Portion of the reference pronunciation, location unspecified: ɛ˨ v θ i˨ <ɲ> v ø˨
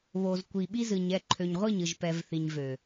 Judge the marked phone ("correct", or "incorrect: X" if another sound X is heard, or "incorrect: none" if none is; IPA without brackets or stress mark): correct